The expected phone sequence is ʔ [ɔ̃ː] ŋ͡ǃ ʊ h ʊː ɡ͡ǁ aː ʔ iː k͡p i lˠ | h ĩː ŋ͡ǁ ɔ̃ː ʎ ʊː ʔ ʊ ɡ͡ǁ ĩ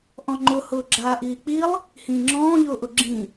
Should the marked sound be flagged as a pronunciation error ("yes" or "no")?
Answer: yes